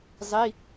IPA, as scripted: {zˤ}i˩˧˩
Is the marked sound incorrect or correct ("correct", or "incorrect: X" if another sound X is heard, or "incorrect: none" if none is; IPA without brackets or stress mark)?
correct